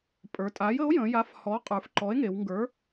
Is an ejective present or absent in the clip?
present